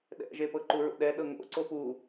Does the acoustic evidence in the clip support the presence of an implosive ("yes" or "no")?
yes